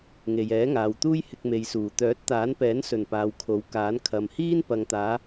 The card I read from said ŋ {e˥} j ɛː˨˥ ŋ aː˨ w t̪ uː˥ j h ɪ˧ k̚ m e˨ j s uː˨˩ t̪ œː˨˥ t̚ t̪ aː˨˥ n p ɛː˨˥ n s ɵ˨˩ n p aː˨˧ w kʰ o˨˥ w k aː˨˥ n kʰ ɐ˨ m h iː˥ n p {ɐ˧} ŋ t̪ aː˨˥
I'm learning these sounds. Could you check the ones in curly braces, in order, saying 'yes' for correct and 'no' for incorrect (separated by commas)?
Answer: no, no